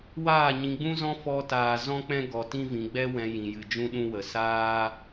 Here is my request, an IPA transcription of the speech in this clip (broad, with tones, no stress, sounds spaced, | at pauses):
w aː˦˨ ɲ ĩ˧ ɡ͡b ũ˦ z ɔ̃˦ f ɔ˧ t aː˨ z ɔ̃˦ k͡p ɛ̃˦ ɡ ɔ˧ t ĩ˦ v ĩ˧ ɡ͡b ɛ˦ w ɛ̃˧ j ĩ˧ j ɨ˧ d͡ʒ ũ˦ ɗ ũ˦ w ə˧ s aː˦